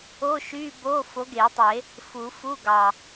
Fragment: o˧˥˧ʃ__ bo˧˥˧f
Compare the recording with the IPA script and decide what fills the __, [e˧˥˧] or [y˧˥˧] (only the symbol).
y˧˥˧